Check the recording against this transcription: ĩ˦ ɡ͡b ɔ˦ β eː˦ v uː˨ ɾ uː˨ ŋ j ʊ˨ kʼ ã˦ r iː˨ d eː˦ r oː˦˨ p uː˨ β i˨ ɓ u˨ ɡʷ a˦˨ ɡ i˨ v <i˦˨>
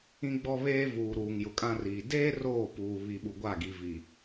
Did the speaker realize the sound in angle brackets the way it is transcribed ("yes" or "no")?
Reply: no